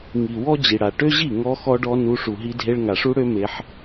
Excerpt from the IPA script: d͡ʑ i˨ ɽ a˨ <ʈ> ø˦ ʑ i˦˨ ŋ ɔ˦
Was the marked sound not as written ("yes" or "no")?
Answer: no